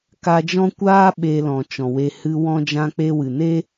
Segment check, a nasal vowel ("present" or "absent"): present